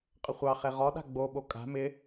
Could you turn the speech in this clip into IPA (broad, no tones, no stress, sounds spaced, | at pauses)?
qʼ ə χʷ ɑ χ e ʁ ɔ ɗ a̤ ɡ͡b o ɓ o kʼ a̤ m ɪ